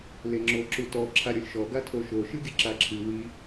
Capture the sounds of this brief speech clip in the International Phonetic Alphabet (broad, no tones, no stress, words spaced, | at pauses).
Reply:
leŋ͡ǁoǁutɔ ǁʰaɾʲolʲʃɔ ɡatʰoʃo ʃɨɡʲɨǁaǁʰɨ wi